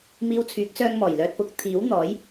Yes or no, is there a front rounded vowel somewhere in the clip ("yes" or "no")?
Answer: yes